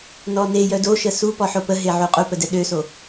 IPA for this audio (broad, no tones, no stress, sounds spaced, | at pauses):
n ɔ n e j œ d o ʃ ə s u p ɔ ħ o p ə ɦ e ʕ u qʼ u p ə d ɛ ɗ ø s o